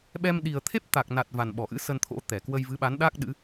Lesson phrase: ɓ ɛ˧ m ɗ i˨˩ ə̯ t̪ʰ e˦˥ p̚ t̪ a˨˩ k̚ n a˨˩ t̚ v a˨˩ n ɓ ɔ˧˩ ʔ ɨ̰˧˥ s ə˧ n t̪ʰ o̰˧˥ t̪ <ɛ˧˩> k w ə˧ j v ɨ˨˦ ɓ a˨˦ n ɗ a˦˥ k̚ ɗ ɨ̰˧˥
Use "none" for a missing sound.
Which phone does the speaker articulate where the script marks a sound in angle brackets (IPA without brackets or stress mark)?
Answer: ɛ˧˩